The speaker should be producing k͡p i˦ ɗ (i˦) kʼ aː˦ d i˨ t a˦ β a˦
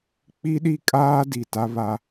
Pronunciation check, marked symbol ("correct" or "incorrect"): correct